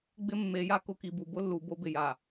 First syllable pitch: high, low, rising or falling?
high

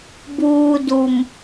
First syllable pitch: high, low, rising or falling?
low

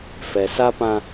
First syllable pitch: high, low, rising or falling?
low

